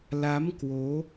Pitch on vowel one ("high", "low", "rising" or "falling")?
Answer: rising